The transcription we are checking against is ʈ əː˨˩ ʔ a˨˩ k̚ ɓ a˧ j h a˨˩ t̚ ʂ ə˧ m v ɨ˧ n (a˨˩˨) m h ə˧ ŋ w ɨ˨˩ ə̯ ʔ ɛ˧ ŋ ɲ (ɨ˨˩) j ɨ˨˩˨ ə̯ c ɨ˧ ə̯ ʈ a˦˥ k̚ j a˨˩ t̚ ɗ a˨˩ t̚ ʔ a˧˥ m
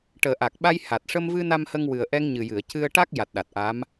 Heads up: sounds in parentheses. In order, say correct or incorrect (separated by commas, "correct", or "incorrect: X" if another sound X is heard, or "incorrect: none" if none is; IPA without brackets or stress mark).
incorrect: a˧, correct